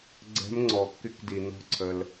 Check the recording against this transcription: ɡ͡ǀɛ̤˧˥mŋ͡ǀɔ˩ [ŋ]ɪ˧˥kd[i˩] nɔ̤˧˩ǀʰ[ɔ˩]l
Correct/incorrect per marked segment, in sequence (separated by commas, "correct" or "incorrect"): incorrect, correct, incorrect